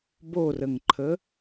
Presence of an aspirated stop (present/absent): present